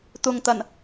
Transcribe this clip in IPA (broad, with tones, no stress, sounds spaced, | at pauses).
t̪ ʊ˨ ŋ t̪ ɐ˨˩ n